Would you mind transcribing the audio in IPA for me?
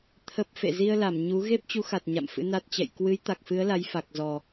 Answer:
t̪ʰ ə˦˥ p̚ f ḛ˧˨ z i˧ ə̯ l a˧˩ m ɲ u˨˦ ɣ e˦˥ p̚ t͡ɕ u˨˦ x a˨˩ t̚ ɲ a̰˧˨ m f ɨ̰˧˥ n a˦˥ t̚ t͡ɕ ɛ̰˧˨ j k w ɨ˨˦ j t̪ a˨˩ k̚ f ɨ˨˦ ə̯ l a˨˦ j f a˨˩ k̚ z ɔ˨˩

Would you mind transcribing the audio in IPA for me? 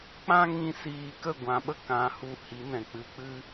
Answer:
k͡p ã˦ ŋ ĩ˧ s iː˧ k ə˦˨ ɡʷ ã˧ ɓ ə˦ k ã˨˦ h u˧ h i˨˦ n ɛ̃˨ k͡p ɨ˧ k͡p ɨ˦

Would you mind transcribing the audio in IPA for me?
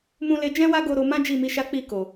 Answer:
m ũ˧ l e˧ d͡ʒ ɛ̃˦ w a˦ ɡ o˧ ɾ o˧ m ã˦ d͡ʒ i˦˨ m i˧ ʃ a˦ k͡p i˦˨ k o˨

